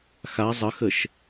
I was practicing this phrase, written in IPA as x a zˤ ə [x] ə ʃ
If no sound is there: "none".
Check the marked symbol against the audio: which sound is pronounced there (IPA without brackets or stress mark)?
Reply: x